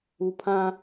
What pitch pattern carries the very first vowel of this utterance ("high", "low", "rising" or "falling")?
low